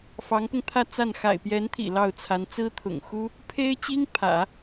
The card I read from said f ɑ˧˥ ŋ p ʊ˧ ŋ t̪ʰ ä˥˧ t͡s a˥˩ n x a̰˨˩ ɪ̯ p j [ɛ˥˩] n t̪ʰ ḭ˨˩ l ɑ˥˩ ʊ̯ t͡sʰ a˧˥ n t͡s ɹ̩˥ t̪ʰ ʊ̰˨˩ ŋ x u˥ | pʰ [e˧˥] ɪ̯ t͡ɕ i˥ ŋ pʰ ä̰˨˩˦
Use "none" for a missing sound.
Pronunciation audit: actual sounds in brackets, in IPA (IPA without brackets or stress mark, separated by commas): ɛ˧˥, e˥